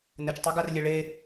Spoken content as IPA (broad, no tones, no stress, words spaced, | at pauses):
nɘt͡ʃtˤoɡarlʲe ɭe